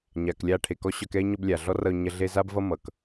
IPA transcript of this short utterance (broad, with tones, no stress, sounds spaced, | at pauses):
ɲ a˨ k lʲ a˦ ʈʰ e˨ k ɔ˥ ɕ œ˦ k ɛ˥ e̯ ɲ ɔ˦ b lʲ a˨ ɮ ɔ˥ r ʌ˦ o̯ ɲ ɐ˥ ɮ e˦ z a˥ b v ʌ˥ m ʌ˨ k